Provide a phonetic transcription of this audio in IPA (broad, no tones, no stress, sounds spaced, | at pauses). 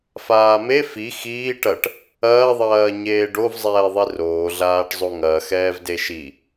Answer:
f aː m e f i x iː ʈ ɐ ʈ | ɐː ðˤ ɐː ɲ eː ɖ o v zˤ ɛː ðˤ i r oː ɮ aː ʈ zˤ o ŋ ɐː x ɛː v d e ʃ i